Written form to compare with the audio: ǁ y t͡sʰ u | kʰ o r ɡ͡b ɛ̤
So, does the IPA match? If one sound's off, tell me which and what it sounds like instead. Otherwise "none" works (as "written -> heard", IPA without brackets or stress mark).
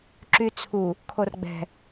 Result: none